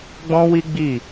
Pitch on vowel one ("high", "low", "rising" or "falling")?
high